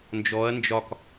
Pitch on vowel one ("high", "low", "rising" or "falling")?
rising